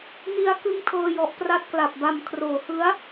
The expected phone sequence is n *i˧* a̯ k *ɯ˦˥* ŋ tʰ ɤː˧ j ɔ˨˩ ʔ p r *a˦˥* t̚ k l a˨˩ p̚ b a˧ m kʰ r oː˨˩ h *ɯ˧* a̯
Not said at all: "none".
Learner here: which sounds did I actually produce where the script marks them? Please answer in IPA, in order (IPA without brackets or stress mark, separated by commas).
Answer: i˧, ɯ˦˥, a˦˥, ɯ˦˥